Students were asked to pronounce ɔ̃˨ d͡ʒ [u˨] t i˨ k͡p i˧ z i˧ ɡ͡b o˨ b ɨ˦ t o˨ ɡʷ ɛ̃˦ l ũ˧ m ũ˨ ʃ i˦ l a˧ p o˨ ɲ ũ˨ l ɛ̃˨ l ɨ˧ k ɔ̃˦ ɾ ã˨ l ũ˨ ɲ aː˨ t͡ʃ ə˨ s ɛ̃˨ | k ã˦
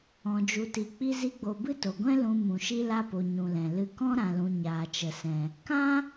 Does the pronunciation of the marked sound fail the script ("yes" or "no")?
no